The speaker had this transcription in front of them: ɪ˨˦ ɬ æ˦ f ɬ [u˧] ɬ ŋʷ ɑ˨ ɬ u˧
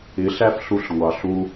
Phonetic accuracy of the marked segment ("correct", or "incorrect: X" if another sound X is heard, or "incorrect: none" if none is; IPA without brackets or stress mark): correct